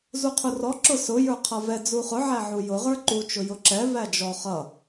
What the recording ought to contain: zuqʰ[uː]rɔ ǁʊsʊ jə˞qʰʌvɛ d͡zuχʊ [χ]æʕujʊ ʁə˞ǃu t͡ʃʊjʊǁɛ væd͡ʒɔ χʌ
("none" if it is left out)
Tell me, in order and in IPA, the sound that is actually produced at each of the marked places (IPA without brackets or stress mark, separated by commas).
u, ʕ